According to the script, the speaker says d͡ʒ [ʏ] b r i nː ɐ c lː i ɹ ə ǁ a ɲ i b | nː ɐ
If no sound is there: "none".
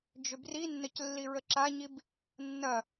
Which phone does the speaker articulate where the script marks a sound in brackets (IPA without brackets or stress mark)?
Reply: ʏ